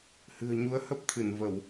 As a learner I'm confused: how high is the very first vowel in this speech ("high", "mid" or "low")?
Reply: high